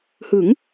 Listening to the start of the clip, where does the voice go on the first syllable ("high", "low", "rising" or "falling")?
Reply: rising